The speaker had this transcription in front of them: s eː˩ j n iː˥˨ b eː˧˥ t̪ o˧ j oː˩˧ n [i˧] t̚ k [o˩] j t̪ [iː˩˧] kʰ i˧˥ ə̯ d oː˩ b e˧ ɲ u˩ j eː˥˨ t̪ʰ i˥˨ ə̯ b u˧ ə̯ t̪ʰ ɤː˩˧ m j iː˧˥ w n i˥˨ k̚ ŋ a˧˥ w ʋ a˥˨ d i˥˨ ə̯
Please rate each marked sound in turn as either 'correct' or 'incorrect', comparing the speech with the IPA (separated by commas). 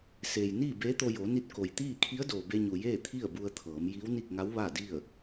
correct, correct, incorrect